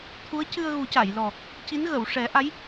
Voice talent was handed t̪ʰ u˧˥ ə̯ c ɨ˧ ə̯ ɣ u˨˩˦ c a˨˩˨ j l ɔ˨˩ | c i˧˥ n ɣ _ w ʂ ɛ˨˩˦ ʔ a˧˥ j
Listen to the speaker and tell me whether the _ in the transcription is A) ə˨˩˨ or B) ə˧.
A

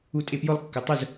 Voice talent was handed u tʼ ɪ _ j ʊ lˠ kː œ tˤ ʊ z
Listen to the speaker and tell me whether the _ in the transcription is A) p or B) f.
A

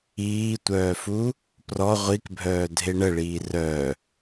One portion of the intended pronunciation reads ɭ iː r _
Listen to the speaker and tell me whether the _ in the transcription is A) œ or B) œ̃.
A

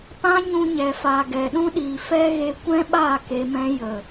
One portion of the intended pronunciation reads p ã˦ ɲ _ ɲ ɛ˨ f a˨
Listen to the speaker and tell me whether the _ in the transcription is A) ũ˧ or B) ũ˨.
A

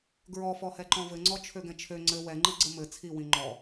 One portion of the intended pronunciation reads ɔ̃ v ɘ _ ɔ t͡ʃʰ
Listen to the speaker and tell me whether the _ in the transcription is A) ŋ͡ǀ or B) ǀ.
A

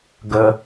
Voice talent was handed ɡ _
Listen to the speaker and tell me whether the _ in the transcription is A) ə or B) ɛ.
A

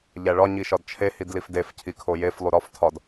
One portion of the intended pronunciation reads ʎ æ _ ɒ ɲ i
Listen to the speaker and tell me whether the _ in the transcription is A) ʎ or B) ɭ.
B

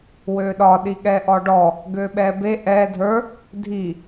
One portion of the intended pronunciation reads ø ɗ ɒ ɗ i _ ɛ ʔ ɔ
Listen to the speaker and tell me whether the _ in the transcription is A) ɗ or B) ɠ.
B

